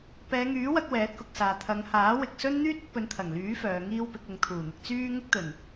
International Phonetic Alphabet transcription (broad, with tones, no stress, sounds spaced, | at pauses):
p ɛː˨˧ ŋ yː˨˥ w ɐ˧ k̚ w ɛː˨˥ t̚ k ʊ˨ k̚ s aː˨ t̪ʰ ɐ˨˧ ŋ h aː˨˥ w ɪ˨ k̚ s ɵ˥ n n̪ yː˥ t̚ ʊ˧ k̚ p ɵ˨˧ n t̪ʰ ɐ˨˩ ŋ l yː˨˥ f œː˨˧ ŋ iː˥ w p ɪ˨˥ k̚ ʊ˨˧ ŋ t̪ʰ uː˨˩ n̪ ɪ˧ k̚ t͡s yː˥ ŋ ɪ˥ k̚ t̪ ɵ˨˩ n